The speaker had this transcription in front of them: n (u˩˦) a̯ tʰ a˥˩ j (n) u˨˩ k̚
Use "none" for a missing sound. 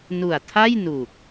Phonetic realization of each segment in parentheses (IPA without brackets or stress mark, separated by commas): u˨˩, n